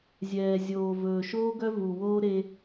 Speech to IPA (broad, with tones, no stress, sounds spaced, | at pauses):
zʲ ɛː˨ zʲ oː˨ v ɵː˨ ʃ oː˦ ɡ œ˦ v u˨ w oː˦ ɾ e˦